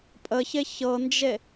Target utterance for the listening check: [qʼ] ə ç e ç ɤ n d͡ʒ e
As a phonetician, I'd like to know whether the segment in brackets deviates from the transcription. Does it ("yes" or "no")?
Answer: yes